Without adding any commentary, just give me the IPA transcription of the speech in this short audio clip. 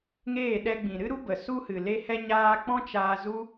ŋ eː˦˨ ɗ ɛ˧ ɡ͡b ĩ˨ ɾ ɨ˦ ɾ u˦ b ə˨ s u˦ h ɨ˨ l e˦ h ɛ˦ ɲ aː˦ k͡p ɔ̃˦ t͡ʃ aː˧ z u˦

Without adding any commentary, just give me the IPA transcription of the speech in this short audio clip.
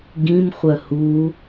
ɡ ĩ m χʷ œ h u

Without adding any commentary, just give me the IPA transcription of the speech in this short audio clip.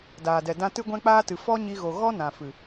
d aː˨ d ɛ˨ d ã˧ t ɨ˧ ɡʷ ɛ̃˧ k͡p aː˧ t ɨ˨ f ɔ˦ ɲ i˧ ɣ o˨ ɣ ɔ˦ n ã˨ f ɨ˨

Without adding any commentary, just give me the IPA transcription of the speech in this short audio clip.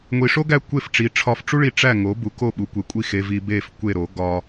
ŋʷ i˧ ʂ o˥ ɡ æ˥˩ kʷ e˥˩ f ʈ͡ʂ i˩˥ ʈ͡ʂʰ ɒ˧ f ʈ͡ʂ u˥ ɭ i˧ ʈ͡ʂ æ˥˩ ŋ o˩˥ b u˩˥ k o˥˩ ɓ u˩˥ kʷ e˩˥ kʷʼ i˥˩ x e˧ v i˧ b e˥˩ f kʷ e˥˩ ɾ o˩˥ ɡ ɒ˧

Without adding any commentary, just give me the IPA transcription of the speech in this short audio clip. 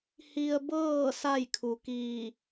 h i˧ ə̯ b ɤː˥˨ s a˥˨ j kʰ u˩ k iː˧˩

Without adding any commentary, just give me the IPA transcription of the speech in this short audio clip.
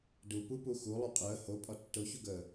d u p u p u x u lˠ u qʼ əː h o pʼ ɒ tː o ç u ɡ əː

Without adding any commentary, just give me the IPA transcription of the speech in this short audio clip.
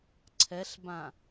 ǀʰ ɛ ɬ b ã

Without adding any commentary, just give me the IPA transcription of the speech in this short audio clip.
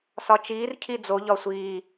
s ɒ t͡ʃ iː r cʰ i d͡z o ʎ ɒ sʷ iː

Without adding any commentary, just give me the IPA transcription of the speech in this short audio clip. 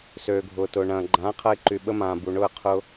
s øː˩ ɡʱ ʊː˩ t ʊː˩ ɳ ɐ̃ː˩ ɡ͡ǃ ãː˩˥ qʰ ɐ˧ ɪ̯ ǃ y˩ ɓ ə˧ m ãː˩ b u˩ ɳ ʊ˥˩ ə̯ qʰ ʊ˧

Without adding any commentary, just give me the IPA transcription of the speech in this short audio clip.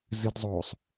z ɨ d zˤ oː sˤ

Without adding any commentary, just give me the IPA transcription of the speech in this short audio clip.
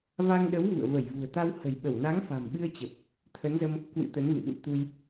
v a˧ ŋ ɗ ə˨˦ w v ṵ˧˨ ə̯ v ə˧˩ j v ṳ˨˩ ə̯ t̪ a˧ w h ə̤˨˩ j ɓ ə˧˩ w n a˨˦ ŋ f a̤˨˩ m ɓ ɨ˧ ə̯ t͡ɕ ə˨˩ p̚ | t̪ʰ ə˨˦ n z ə˧ m | k w ɨ̰˧˥ t̪ ə˨˦ n v ɨ̰˧˨ ɗ ṵ˧˨ t̪ u˧ j

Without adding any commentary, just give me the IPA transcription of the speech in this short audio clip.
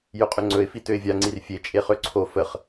j ɵ qʼ ʏ ŋ͡ǀ ɵ ɪ̯ f i t ø ɪ̯ vʲ a ŋ͡ǀ i r fʲ e t͡ʃʼ e χ ø ǀʰ o f ə χ

